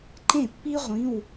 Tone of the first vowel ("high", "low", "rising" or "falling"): falling